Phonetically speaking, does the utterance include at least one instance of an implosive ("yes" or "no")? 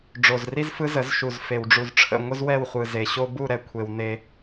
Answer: no